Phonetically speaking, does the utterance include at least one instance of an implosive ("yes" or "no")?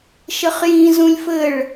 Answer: no